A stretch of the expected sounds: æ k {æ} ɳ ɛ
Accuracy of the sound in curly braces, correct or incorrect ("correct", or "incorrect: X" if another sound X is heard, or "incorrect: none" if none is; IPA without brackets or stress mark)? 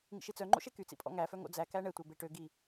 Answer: correct